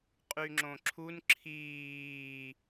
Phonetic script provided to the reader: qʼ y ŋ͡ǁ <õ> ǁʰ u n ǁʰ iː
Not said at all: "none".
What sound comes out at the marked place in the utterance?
õ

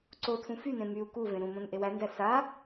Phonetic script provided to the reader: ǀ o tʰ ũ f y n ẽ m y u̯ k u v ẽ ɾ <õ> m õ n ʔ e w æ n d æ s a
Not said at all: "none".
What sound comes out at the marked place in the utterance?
ũ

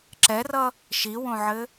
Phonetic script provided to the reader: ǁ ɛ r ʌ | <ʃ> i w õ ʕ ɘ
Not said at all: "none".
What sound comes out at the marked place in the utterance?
ʃ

